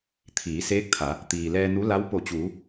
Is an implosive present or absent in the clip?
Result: absent